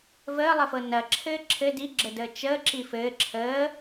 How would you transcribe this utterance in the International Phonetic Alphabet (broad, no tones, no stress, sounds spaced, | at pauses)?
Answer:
v əː lˠ ə f ɤ n ɐ ǁʰ ɘː ǁʰ ɘ d i ɡ͡ǁ ə d əː t͡ʃ əː ǁ i f ɘː ǁʰ əː